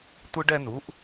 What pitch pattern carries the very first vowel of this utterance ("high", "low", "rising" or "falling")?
high